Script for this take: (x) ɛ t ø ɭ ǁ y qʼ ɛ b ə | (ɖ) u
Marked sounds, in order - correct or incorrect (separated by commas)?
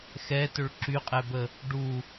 correct, correct